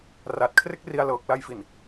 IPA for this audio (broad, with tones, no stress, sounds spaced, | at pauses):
r a˨˩ t̚ kʰ r e˥˩ k̚ r i˧ a̯ l ɤː˨˩ k̚ l a˧ j f i˨˩ n